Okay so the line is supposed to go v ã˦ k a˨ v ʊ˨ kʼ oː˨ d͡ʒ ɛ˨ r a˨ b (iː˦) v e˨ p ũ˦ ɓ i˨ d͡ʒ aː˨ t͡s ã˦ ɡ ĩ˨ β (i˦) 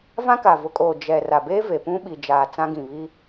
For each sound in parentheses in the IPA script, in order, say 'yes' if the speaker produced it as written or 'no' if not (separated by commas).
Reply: no, yes